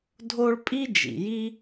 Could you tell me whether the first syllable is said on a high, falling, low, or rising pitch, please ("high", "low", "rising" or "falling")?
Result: high